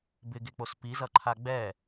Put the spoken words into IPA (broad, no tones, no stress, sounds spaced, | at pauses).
b ɪ ɡ e k͡p o s p i z ʌ ǃʰ a ɡ͡b ɛ